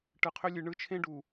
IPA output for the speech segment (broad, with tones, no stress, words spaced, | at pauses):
ʈɯ˨qʰʏ˦lʲɨ˨ ɳɯ˦t͡ʃʰẽ˦ɖu˨